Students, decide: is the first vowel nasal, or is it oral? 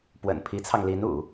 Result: oral